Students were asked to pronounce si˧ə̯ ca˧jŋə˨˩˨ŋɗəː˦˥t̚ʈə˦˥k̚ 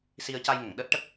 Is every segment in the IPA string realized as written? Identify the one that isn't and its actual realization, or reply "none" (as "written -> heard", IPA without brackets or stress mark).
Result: none